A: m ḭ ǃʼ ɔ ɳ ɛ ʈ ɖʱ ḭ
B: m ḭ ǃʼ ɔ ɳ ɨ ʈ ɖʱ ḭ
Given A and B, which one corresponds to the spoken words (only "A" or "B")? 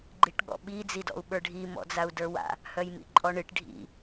B